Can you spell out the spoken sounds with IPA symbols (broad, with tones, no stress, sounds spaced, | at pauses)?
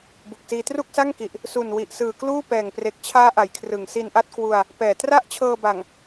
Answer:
b u˨˩ k̚ s iː˧ t r u˥˩ k̚ s a˥˩ ŋ k i˨˩ ʔ | s u˨˩ n w i˨˩ ʔ s ɯː˨˩ k l uː˥˩ p ɛː˨˩ ŋ p r e˨˩ k̚ t͡ɕʰ aː˦˥ ʔ a˨˩ j kʰ r ɯ˨˩ ŋ s i˧ n ʔ a˥˩ t̚ k w u˧ a̯ | p ɛː˨˩ t r a˥˩ ʔ t͡ɕʰ ɤː˧ b a˨˩ ŋ